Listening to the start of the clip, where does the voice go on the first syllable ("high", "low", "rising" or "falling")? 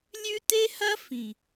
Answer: high